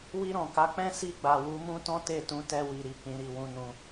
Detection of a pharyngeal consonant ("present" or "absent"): absent